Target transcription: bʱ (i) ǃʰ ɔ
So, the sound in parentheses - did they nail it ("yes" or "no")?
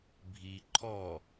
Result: yes